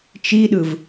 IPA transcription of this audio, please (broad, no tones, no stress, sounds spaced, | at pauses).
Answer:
t͡ʃ i ɗ ɯ v